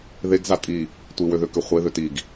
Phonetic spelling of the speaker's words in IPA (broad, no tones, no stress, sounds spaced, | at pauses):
ð e ɡ z a tʼ i | tʷ i w ø ð ø k ø χʷ e ð ø t i ɡ